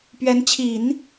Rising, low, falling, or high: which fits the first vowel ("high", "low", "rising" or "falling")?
rising